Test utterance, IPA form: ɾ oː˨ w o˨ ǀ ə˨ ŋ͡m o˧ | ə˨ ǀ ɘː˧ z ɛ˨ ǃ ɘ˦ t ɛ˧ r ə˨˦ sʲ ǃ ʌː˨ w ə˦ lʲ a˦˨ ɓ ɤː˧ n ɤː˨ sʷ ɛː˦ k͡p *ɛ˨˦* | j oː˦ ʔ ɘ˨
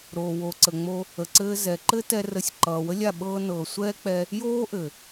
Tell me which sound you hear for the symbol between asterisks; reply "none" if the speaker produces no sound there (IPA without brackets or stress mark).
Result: ɛ˧